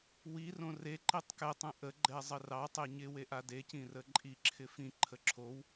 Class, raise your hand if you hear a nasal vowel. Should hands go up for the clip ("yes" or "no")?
yes